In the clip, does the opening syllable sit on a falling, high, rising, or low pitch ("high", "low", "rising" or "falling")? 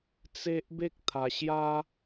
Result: high